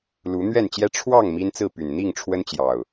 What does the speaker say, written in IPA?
lu˨˦ n̪ɥɛ˥˨nt͡ɕjɛ˦ ʈ͡ʂʰwɑ˥˨ŋ mi˦nt͡sɹ̩˥˨py˨˩n n̪i˥˨ŋʈ͡ʂʰwə˦nt͡ɕjɑ˨˩ʊ̯

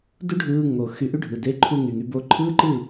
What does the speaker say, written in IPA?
du˦ɖʱɯː˧ŋo˨ xy˧ʔy˦ɖʱɯ˨ de˧ǃʰu˧ ŋy˨ŋy˧ bo˧ǃʰɯː˦ǃɯ˦˨

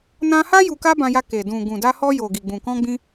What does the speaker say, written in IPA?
nã˧ha˦ ju˧ka˦bã˧ja˧ ke˨dũ˨ ɡũ˨da˧hɔ˧ jo˨ɡi˨ɡ͡bũ˨ kɔ̃˧ɡ͡bĩ˧

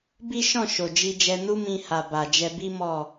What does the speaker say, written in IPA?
bi˦ʃɔ̃˦˨ ʃo˨d͡ʒi˧d͡ʒɛ˧ nu˦mĩ˧ha˨ ba˨d͡ʒɛ˧bi˦ mɔ˦˨

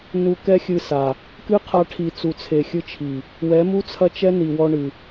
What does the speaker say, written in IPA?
nu˨ kɛ˦xʲɨ˧sa˨ | kɨ˦qʰa˧ʈʰi˨ t͡su˨t͡sʰe˨xʲɨ˧t͡ʃʰi˨ | wɛ˨˦mu˦t͡sʰɐ˦t͡ʃɛ˦ ni˨wɔ˧ɳɨ˨

